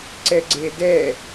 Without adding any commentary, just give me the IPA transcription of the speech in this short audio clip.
ǀ ɛ ɡ͡ǀ e d ɛ

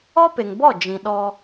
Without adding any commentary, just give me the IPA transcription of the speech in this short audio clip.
ɔ˦ p e˨ ŋ b ɔ˦˨ d͡ʒ ĩ˨ ɗ ɔ˦

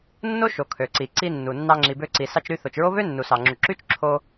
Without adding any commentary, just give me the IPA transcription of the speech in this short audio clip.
nː o˥ ʃ o˩ kʰ ø˩ ǀ i˩ ǀ i˧ nː u˩ nː ɑ˧ ŋ͡ǁ i˩ b ø˧ ǀ i˩ s ɑ˧ t͡ʃ ɾ y˧ θ o˩ t͡ʃ ɹ o˥ β ø˥ nː u˩ s ɑ˩ ŋ͡ǁ u˩ ǁ y˥ t͡ʃ ǁʰ o˧

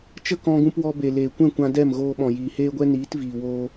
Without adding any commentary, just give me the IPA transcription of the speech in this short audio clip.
t͡ʃ ə˦ k ɔ̃˧ ɡ ũ˧ p w ɔ˧ b e˨ l eː˨ kʷ ɛ̃˦˨ kʷ ã˧ d ɛ˦˨ m ɣ oː˧ ɓ ɔ̃˨ j iː˨ h eː˦ ɡʷ ɛ˦ n iː˨˦ t v iː˨ w oː˧

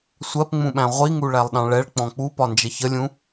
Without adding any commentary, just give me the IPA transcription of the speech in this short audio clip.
sʷ ɜ p ŋ͡m ũ ɓ æ̃ ʁʷ i ŋ u ɭ æ lˠ ɗ ɑ̃ ɭ ɛ ɭ k͡p ɔ̃ k͡p u p ɒ n d͡ʒ ə ç ə lʲ ũ

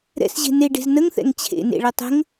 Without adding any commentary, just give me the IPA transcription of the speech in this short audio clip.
ɾ ɛ̰ s ʑ e̤ n e ɖ e̤ z n ə ŋ θ ɛ̰ ŋ t͡ɕʰ ḛ n ḛ ɭ ɛ tˤ ə̤ ŋ

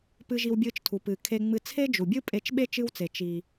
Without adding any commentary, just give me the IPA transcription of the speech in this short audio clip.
p ɨ˥ ʒ i˥ w bʲ ɨː˥ t͡ʃ tʰ u˩ p ɨː˩ kʰ e˧ ŋ͡m ɨ˧ t͡sʰ e˥ d͡ʒ u˩ bʲ ɨ˥ pʼ e˧ t͡ʃ ɓ e˥ t͡ʃ ɨ˥ w t͡s e˩ t͡ʃ i˩

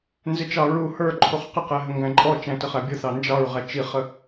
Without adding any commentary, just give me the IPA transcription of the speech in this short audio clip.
n z ɪ t͡ʃ ɑ ɹ u h ə˞ ǃʰ u χ q ɪ q ɛ ɦ ə ŋ ɡ æ̃ ǃʼ ɔ t͡ʃ æ̃ t ə χ æ bʲ ʊ θ ɑ n d͡ʒ ɑ ɹ ʁ æ t͡ʃ i χ ə

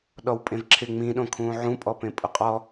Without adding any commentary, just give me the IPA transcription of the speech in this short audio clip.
ɗ ɔ w pʼ ẽ v ǁʰ ɪ ŋ͡m ĩ ɗ õ kʰ ũː ʕ ũ pʼ ɔ p ẽ pʼ ʊ qʼ ɔ

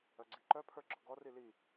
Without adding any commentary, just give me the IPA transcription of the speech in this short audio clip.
œ ɡ͡ǀ i ǃ œ pʰ ə˞ ɡ͡ǁ ɔ ɡ ɔ r i l i

